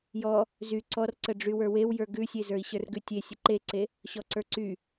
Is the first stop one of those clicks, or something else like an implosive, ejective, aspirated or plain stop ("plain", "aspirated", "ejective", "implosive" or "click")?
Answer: click